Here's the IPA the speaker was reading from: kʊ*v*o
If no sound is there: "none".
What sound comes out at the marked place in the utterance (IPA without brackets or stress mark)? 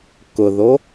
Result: ð